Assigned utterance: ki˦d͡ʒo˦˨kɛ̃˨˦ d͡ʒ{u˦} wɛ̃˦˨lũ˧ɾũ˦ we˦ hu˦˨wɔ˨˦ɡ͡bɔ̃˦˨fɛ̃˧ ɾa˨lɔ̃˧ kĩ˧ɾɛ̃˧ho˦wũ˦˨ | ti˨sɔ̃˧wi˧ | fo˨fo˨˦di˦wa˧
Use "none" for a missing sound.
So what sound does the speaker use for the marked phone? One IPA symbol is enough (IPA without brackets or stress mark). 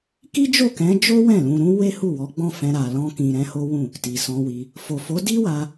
o˦